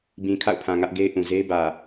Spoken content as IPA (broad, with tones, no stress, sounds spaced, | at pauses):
b ĩ˨ kʰ a̰˦˨ ʊ̯ pʰ ã˨ ŋ ä˦ ʔ ɡ e˦ ɪ̯ ʔ ũ˨ z e˦ ɪ̯ b ä˨